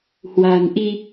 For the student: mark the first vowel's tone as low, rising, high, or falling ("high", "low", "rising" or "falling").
low